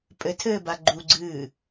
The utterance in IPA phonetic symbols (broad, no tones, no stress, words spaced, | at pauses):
pʼɘtʰɘːba ɡ͡ǃuɡ͡ǀɨː